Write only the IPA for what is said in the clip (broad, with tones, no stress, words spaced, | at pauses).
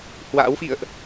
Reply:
hwa̰ː˧˥wfḭ˧˨ə̯ʔ